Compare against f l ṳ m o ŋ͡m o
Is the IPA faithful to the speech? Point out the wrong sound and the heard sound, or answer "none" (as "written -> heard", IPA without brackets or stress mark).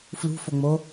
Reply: m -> f